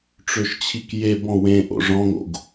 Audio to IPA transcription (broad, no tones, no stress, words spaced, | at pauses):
ʈ͡ʂøʃt͡ɕʰikje bɔ̃wẽ ʔo̰ʐɔ̃ŋo̰ɡ